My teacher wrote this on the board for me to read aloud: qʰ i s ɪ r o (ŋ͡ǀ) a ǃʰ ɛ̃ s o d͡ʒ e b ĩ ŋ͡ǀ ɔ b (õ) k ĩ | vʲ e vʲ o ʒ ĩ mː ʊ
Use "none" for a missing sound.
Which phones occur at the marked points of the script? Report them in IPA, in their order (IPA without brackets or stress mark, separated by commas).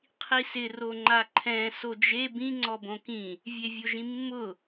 ŋ͡ǃ, õ